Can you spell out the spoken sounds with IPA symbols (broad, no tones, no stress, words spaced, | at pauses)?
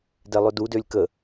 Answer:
dɛlˠødu dølʲkə